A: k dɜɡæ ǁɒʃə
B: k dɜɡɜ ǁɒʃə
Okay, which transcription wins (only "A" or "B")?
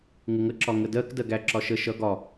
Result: A